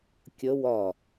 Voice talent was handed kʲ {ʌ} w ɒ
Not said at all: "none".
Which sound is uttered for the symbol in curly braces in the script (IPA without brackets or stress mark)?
ə